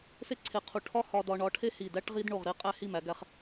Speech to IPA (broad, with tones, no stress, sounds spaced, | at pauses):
s e˥ ǀʰ e˧˩ qʰ u˧˩ ʈʰ ɒ˥ h ɒ˧ d ɒ˧ ɳ ɒ˧ ʈʰ e˥ h i˧˩ d æ˥ ʈ ʁ i˥ d ɳ o˧˩ ʁ ɾ e˧ qʼ æ˥˧ h i˥˧ m æ˩˧ ɡ æ˧ χ